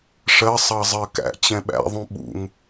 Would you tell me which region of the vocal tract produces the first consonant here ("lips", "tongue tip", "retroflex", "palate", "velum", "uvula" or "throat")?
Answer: retroflex